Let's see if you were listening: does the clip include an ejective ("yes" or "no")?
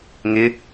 no